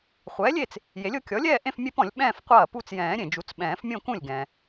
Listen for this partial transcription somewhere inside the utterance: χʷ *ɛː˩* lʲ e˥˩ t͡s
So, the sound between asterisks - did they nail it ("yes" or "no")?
no